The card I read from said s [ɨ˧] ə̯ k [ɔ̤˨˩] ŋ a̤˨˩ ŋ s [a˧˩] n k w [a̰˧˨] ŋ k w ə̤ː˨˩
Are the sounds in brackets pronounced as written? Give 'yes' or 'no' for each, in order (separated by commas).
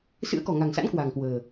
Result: no, yes, no, no